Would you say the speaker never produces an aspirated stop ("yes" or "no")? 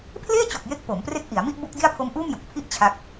no